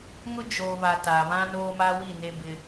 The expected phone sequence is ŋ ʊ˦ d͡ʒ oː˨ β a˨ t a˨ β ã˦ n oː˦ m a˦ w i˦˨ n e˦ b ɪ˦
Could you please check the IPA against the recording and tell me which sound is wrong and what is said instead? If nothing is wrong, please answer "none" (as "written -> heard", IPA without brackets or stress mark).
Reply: none